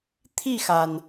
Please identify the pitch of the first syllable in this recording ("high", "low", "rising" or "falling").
falling